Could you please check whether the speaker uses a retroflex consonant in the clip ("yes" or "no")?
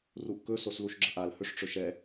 yes